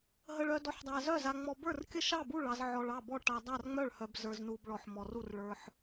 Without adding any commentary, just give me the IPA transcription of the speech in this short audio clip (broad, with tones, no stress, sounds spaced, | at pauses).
ɦ ə˧ ɭ œ˧ d ɔ˧ ħ dˤ a˧ z œ˥˨ z a˧ ŋ͡m ɔ˧ b ə˞˥˨ r kʲ ə˥˨ ʃ ɑ˥˨ b u˥˨ ɭ ɑ˧ z ʕ ɔ˧ ɭ ɑ˥˨ b ɔ˥˨ ʈ a˧ dˤ a˥˨ r ŋ͡m œ˥˨ ɭ h œ˧ b z ə˞˧ z n u˧ b ɭ ɔ˧ ħ m ɔ˧ r u˥˨ r ɭ ə˞˧ ħ